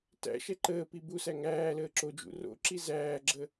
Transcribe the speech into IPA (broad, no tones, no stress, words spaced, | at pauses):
tæ̰ ʃɛǃəːpi busæ ŋæːləː ǁod͡ʒṵ ro̰ǁi zæːɡ͡ǁə